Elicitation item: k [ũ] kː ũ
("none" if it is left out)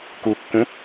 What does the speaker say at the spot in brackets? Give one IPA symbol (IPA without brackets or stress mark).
u